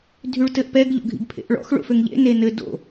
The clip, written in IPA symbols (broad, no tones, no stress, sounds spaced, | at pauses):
dʱ y ɭ t ɘ ʔ p ɛ ɡ ʎ o̰ ɡʱ ḭ ɡ pʰ ḛ ʔ ɭ ɔ̰ x ɭ o̰ f ø ŋ ʎ ḛ n e n ɘ d o̰